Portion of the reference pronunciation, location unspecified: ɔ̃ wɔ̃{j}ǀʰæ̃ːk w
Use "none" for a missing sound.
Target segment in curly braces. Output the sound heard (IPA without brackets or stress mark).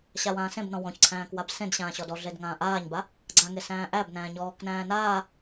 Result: ç